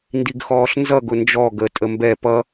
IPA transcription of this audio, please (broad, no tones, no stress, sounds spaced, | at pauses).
n d i ɡ x ɔː ɬ n z ʌ ɡ ʊ n d͡ʒ ɔ ɡ ə tʼ ə m b ɛ p ʌ